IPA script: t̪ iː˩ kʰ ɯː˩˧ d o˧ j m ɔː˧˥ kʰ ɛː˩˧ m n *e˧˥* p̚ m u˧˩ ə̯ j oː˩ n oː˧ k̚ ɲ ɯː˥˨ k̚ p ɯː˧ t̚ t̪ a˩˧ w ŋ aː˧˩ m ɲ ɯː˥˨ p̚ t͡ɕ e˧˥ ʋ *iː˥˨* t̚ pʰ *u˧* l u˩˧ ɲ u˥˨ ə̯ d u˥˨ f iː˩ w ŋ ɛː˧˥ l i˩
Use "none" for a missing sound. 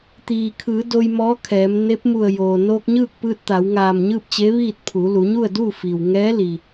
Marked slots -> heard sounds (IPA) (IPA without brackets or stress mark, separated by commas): e˧˥, iː˥˨, u˩˧